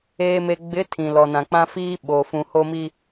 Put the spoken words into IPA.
eː˨me˨ɡ͡bɪ˨˦ tʰĩ˨lɔ˨nã˨k͡pã˦ fiː˦ ɓoː˨fũ˨ho˦mi˦

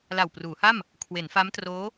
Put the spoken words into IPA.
la˨˩wpruː˩˦ha˥˩m | kʰwe˩˦nfa˦˥mtroː˦˥

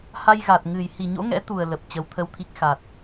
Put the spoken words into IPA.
ha˧jɣa˨˩t̚ŋɨ˨˩j hi˨˩ɲo̰˧˥ŋɛ̰˧˥t̪u˨˩ə̯ lə˨˩p̚ t͡ɕəː˨˦wt̪ʰə˧wt̪ʰi˦˥k̚ xa˨˩t̚

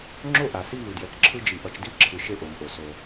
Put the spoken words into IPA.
ŋ͡ǁo˦ʔa˨ si˦vɯ˨djɛ˨kǁʰɯ˦ d͡ʒi˨ʔʌ˨t͡ʃdi˦˨ǁʰɯ˨ ʃe˦ʔo˨mʔo˨ so˦

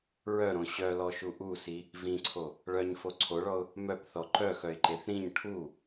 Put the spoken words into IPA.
ɹœɾõ ɕœlɔʃu ʔusi | vĩǀʰo | ɭœɲfo ǀʰoɭɔʊ̯ | mœpθɔ ǃœxœɪ̯ǃeθ ɾĩɲ ʈʰu

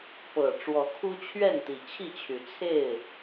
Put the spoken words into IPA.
pɤ˨˩ ʈ͡ʂwɔ˨˦kʰu˦t͡ɕʰɥɛ˥˨nt̪i˨˩ t͡ɕʰi˥˨t͡ɕʰy˨˦ t͡sʰe˥˨ɪ̯

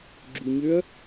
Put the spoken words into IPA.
ɡ͡ǁuɲøɐ̯

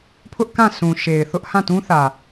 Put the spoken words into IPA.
pʰʊ˦ʔkã˦˨ sʰũ˨ʃe˨ɪ̯θʊ˦ʔ hã˦˨tũ˦θä˨

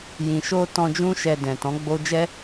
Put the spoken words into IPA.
jĩ˨ ʃo˧ tɔ̃˧d͡ʒũ˦ ʃɛ˧ dɛ̃˨ tɔ̃˨˦ɡ͡bo˦ d͡ʒɛ˦

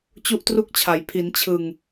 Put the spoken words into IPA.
t͡ɕu˥˩ʔtru˥˩k̚t͡ɕʰa˩˦j pʰi˩˦nt͡ɕʰɯ˨˩ŋ

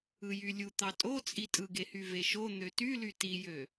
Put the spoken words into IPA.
ɯjylʲu t̪ɑtʼot͡sʼi tʼɯɡehy veʃo n̪øtyly tijø

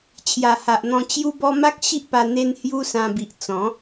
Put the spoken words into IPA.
t͡ɕʰja˨˩ha˨ʔn̪ɔ̃˧ t͡ɕju˦bɔ˦ ma˦k̚ ɕi˦ʔpa˧ n̪e˦n hju˦sã˧bi˨ʔ t͡sɔ̃˨˦

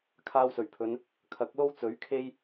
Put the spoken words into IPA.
kʰaː˧wsɵ˨˩ɥpʰɵ˨˧n | kʰɐ˨˥k̚lo˥w t͡sɵ˨˥ɥkʰe˥j

